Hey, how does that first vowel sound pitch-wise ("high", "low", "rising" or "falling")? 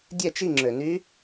falling